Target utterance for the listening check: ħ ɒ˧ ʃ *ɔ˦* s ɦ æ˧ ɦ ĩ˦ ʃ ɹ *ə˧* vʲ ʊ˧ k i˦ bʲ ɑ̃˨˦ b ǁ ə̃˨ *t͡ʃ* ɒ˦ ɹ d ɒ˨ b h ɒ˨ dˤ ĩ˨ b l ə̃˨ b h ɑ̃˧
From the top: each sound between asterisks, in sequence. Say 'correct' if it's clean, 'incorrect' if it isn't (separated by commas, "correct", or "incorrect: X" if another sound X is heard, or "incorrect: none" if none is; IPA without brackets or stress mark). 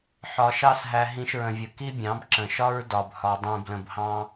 incorrect: ɑ˦, incorrect: ə̃˧, incorrect: ʃ